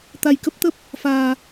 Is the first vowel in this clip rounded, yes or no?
no